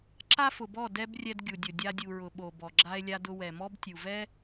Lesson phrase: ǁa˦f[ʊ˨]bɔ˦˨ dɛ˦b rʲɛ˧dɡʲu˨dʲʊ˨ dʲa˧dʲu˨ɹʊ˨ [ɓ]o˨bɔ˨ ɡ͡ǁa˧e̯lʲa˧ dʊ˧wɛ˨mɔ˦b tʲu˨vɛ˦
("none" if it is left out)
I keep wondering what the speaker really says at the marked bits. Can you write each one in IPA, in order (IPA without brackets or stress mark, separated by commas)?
ʊ˨, ɓ